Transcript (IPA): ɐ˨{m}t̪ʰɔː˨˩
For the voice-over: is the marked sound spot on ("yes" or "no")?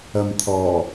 yes